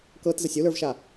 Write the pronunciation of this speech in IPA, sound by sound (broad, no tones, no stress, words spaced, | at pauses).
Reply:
kɤtzəsʲ ulə˞vʃa